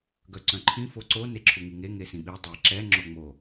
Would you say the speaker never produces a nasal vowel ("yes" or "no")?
no